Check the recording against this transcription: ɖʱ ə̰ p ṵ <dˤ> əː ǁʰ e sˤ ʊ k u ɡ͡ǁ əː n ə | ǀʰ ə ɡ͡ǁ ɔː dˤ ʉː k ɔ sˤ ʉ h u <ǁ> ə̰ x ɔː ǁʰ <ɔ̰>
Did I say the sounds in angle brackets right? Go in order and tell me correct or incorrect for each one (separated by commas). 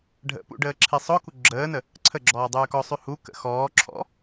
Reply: incorrect, incorrect, correct